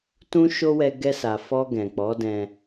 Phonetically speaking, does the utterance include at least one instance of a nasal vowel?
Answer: yes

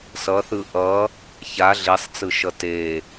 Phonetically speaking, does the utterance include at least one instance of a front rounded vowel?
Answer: no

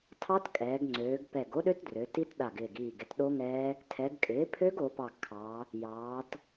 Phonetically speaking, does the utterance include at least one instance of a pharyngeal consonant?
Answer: no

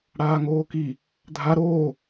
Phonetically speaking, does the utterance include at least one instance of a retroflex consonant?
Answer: yes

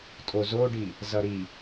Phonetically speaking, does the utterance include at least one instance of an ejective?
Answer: yes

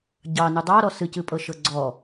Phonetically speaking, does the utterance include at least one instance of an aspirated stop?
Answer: no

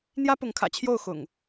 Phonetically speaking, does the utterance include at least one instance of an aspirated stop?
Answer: yes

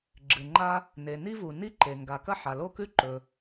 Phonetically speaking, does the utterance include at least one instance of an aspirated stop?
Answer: no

